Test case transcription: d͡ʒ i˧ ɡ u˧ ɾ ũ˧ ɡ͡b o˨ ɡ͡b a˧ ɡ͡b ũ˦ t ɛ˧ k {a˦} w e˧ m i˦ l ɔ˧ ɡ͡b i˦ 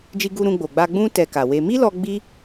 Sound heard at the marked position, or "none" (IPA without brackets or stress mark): a˨